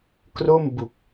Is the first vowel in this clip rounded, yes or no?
yes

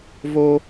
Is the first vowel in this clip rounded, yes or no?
yes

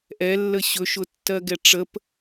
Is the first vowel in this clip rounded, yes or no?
no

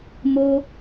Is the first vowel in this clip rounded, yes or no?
yes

